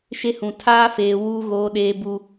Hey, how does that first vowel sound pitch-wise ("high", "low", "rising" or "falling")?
high